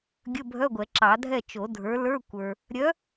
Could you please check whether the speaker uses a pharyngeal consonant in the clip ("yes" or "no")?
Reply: no